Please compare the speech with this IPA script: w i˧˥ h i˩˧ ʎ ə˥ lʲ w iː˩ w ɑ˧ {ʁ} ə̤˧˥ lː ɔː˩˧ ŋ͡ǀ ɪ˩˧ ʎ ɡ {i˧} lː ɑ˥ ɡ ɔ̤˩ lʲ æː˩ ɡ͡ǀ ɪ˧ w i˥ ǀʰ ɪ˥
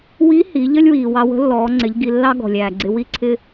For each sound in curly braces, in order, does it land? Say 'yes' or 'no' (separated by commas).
no, yes